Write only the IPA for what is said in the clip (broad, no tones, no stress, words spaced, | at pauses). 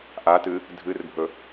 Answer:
ʔatɨ | dʱɨrbʱɵ